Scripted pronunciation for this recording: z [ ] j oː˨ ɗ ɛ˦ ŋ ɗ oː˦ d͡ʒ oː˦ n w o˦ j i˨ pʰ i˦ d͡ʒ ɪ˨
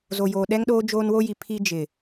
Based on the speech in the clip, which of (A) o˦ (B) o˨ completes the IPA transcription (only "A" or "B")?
B